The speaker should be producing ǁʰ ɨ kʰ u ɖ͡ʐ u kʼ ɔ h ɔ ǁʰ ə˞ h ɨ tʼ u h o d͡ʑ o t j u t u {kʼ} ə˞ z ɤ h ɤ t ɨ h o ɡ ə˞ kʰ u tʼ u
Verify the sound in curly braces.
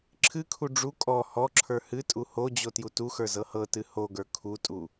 incorrect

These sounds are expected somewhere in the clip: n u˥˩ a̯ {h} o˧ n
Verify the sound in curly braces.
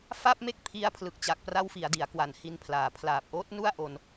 incorrect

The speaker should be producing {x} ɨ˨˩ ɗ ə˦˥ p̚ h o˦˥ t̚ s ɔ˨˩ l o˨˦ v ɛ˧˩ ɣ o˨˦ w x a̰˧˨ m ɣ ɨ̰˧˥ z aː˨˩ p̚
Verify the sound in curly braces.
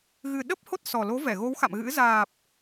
incorrect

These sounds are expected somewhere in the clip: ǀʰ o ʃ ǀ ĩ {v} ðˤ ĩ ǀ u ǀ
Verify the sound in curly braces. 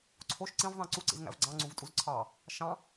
correct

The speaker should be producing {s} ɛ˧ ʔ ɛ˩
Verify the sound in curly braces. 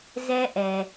incorrect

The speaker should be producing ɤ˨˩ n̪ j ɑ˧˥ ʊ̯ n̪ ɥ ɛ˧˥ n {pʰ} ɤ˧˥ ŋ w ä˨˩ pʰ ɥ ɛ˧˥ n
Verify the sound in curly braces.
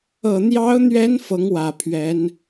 incorrect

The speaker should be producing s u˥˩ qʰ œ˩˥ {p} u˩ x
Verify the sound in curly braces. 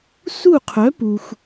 correct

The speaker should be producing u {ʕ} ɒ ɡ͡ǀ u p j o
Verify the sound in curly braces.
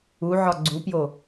correct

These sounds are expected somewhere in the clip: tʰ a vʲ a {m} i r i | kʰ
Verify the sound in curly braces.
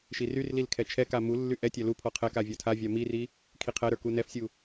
correct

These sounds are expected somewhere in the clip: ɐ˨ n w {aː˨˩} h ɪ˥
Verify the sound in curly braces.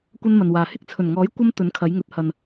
incorrect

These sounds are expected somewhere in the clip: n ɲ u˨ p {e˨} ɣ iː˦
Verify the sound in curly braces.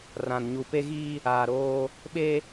incorrect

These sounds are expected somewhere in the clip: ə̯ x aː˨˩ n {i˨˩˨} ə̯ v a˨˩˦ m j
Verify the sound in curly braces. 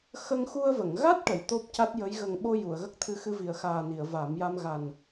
correct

